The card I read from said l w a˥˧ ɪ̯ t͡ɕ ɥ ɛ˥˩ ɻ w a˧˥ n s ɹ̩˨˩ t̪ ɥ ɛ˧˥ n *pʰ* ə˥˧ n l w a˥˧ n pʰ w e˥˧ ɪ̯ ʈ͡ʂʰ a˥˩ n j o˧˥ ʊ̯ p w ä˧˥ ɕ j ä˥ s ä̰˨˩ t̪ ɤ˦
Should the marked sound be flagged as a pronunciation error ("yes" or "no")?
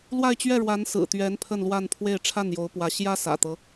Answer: no